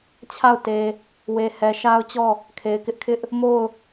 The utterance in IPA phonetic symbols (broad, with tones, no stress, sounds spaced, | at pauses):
t͡ɕʰ a˦˨ ʊ̯ t e˨ | w e˨ h ɛ˨ ʃ a˦ ʊ̯ t͡ɕ ɔ˦˨ | kʰ e˨ ɪ̯ k ɪ˦ ʔ kʰ ɪ˦ ʔ | m o˦˨ ʊ̯